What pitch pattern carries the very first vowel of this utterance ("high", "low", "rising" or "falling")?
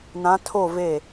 rising